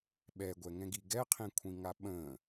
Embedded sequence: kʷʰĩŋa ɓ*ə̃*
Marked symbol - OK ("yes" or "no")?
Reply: yes